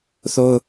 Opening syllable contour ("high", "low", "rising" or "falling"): high